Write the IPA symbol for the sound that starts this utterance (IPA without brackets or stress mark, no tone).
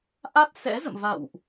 ʔ